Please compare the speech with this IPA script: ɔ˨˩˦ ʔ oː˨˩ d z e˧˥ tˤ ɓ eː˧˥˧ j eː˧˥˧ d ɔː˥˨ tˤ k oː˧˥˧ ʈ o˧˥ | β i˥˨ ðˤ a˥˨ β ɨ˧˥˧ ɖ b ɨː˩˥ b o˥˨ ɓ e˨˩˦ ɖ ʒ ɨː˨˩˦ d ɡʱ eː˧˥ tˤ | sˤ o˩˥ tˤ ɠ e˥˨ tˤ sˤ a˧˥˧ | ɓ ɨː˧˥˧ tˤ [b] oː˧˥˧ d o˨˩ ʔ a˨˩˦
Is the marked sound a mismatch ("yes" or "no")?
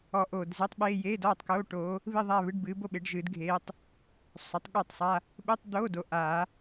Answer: yes